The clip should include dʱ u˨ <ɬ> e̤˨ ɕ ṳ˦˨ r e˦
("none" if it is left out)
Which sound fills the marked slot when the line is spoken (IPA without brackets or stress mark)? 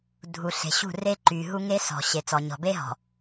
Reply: ɬ